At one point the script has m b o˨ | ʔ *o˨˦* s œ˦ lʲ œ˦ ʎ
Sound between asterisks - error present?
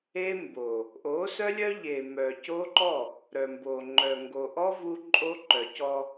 no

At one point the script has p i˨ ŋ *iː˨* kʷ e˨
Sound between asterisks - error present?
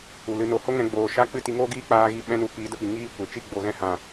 yes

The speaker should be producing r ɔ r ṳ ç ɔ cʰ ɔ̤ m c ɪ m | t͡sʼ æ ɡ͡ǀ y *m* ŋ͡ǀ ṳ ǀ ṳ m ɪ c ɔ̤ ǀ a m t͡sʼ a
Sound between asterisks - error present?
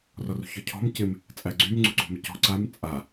no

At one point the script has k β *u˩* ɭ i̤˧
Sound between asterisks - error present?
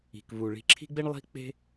no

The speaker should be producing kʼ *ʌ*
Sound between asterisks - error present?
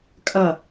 no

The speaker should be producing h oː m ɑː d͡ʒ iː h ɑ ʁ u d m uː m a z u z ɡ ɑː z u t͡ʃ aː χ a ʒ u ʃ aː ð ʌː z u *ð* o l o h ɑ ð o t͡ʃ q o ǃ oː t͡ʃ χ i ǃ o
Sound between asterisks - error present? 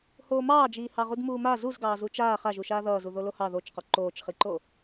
no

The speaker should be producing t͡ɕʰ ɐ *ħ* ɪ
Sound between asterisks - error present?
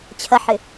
no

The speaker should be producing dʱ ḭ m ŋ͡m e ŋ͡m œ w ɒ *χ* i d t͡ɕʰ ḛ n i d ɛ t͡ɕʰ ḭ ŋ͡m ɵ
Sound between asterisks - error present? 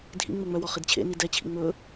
no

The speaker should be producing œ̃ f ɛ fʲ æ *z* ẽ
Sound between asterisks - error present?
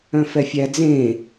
yes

